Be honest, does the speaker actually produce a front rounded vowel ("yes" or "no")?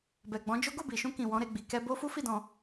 no